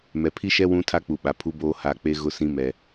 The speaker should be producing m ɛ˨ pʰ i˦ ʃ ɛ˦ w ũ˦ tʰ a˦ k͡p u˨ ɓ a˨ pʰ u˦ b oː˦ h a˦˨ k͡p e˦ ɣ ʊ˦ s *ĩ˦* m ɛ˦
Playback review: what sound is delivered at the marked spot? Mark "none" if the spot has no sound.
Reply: ĩ˦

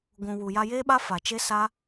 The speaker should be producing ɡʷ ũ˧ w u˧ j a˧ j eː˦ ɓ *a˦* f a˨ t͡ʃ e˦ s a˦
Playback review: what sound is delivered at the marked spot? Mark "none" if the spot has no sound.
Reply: a˦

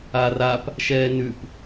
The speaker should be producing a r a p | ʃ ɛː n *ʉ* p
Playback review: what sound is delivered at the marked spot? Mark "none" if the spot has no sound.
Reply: ʉ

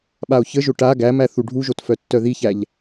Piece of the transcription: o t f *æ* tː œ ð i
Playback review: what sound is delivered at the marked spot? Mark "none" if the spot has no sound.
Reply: œ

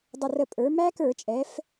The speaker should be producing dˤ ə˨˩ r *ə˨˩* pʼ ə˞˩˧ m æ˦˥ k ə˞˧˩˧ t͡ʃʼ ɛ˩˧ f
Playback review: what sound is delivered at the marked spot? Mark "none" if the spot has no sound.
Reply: ə˨˩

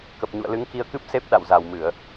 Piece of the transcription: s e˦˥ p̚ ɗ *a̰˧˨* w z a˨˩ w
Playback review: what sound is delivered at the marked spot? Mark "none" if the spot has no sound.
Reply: a̰˧˨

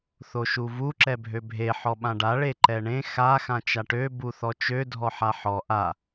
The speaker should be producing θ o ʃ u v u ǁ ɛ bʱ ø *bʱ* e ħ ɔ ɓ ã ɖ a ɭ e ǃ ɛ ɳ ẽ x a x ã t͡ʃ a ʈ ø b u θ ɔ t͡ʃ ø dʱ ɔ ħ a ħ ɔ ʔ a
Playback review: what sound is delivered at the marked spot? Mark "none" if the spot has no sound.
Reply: bʱ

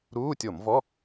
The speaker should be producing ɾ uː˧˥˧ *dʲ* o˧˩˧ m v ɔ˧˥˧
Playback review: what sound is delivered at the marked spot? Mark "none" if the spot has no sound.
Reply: tʲ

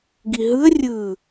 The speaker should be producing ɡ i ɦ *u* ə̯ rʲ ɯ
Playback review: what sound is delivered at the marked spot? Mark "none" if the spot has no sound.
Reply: ɯ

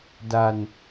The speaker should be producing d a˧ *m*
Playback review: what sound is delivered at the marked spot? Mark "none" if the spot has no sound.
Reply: n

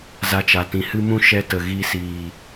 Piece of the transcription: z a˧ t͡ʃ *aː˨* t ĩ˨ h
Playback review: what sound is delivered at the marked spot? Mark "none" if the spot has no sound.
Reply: a˨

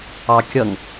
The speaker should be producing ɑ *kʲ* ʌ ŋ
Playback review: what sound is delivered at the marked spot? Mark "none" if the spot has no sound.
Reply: kʲ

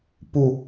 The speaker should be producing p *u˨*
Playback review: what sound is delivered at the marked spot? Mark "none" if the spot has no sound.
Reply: u˨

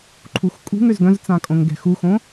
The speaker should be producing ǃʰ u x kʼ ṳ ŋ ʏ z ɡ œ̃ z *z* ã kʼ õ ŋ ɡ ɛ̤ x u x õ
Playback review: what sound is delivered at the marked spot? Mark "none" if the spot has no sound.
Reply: t͡s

